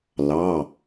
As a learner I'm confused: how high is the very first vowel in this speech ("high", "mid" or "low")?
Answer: low